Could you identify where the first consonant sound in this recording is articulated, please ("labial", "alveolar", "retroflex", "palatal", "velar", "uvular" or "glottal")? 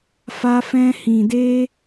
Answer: labial